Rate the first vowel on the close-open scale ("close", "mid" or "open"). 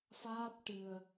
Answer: open